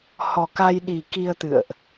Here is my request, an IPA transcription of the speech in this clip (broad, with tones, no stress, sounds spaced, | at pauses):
h ɔ˨˩ k a˧ j ɗ i˨˩ k i˧ ə̯ t̪ ɨ̰˧˨ ə̯ ʔ